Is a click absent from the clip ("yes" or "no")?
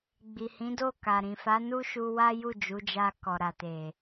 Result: yes